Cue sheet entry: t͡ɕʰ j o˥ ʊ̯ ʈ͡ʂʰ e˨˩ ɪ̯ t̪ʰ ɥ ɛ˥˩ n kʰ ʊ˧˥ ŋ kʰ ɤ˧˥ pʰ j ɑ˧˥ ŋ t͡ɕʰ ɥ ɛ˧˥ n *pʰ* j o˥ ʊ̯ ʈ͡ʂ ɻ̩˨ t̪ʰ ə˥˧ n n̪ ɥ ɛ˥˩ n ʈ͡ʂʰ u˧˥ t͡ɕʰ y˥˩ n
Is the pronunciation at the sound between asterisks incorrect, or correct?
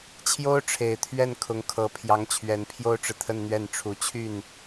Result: correct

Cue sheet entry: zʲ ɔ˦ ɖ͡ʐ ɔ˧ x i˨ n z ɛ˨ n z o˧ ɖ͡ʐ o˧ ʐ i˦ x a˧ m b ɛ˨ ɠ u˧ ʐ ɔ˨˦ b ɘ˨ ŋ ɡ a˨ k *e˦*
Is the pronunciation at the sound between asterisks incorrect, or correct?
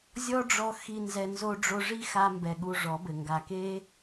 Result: correct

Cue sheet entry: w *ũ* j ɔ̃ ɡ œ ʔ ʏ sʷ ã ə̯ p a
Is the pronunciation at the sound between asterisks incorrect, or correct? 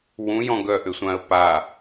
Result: correct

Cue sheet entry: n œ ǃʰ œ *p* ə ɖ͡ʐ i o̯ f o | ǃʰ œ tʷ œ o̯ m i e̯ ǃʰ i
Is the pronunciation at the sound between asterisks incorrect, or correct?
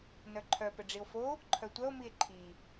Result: correct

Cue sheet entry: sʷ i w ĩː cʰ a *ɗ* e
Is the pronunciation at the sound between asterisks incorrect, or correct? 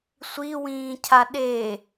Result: correct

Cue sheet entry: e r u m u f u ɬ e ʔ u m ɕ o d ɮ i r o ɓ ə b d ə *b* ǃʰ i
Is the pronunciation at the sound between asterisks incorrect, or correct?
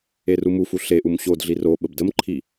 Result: incorrect: m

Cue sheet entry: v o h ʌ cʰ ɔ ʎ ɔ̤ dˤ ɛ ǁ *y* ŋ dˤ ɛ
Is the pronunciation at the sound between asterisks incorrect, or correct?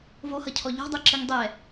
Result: incorrect: ɨ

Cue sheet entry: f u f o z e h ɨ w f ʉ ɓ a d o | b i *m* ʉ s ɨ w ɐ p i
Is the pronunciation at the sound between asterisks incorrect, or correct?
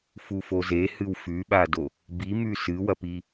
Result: correct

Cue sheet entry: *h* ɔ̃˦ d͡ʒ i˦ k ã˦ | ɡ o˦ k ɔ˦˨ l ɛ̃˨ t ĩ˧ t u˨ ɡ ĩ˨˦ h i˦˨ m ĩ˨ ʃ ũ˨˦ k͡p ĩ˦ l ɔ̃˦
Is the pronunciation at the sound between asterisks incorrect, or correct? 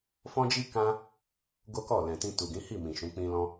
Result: incorrect: f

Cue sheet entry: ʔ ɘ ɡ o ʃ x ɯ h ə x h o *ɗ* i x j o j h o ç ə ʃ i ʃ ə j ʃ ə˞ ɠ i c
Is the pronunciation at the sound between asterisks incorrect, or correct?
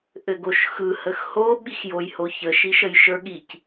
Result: incorrect: ɓ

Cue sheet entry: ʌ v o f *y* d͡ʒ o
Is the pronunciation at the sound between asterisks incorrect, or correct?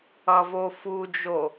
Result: incorrect: u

